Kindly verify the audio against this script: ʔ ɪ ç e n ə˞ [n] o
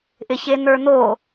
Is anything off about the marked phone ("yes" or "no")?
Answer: no